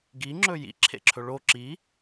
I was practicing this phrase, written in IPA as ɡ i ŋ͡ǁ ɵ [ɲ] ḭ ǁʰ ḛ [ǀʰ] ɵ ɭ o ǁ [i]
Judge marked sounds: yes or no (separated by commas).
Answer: no, no, yes